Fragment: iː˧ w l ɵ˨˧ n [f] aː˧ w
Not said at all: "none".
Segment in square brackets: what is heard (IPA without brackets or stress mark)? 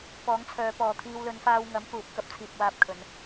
f